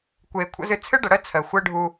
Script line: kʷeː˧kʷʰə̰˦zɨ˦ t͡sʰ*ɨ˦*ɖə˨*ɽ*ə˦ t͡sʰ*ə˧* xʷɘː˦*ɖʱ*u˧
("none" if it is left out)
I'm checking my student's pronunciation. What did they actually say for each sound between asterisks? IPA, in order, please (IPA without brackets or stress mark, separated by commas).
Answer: ɨ˦, ɽ, ə˨, ɖʱ